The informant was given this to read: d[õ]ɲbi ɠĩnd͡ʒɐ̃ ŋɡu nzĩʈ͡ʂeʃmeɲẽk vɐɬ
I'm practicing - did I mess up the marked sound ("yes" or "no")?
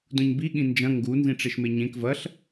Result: yes